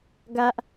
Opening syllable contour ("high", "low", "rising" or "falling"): high